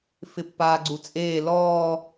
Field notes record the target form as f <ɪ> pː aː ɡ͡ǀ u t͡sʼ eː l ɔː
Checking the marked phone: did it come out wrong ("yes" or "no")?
no